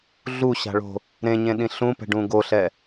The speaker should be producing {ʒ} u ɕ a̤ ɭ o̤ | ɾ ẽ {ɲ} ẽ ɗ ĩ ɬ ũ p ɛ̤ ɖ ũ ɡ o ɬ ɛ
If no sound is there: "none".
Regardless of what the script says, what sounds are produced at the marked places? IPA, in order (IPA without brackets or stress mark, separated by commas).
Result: ɮ, ɲ